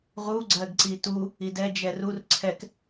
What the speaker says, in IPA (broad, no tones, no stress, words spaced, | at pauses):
ʁu ɡ͡ǀɜɡǀitu | idɛ d͡ʒɛrur ǀʰɛk